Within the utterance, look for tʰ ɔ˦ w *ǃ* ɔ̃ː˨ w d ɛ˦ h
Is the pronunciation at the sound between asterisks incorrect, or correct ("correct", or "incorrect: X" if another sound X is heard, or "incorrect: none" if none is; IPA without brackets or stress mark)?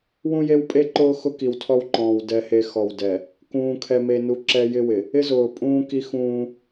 correct